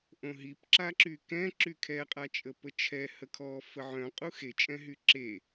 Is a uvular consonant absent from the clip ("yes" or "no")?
no